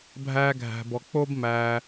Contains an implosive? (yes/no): no